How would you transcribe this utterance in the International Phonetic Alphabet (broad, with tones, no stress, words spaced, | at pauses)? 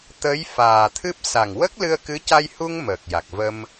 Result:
t̪ə˧˥j faː˨˩t̪ʰɨ˦˥p̚ sa˨˩ŋwə˦˥k̚lɨ˧ə̯kɨ˧˥ ca˧jhu˧ŋ məː˨˩k̚ja˨˩k̚və˧m